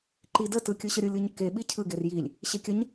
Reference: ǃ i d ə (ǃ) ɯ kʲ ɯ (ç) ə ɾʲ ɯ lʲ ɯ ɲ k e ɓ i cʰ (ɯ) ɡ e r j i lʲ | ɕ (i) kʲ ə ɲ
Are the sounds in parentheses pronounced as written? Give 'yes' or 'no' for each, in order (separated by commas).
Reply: no, no, yes, no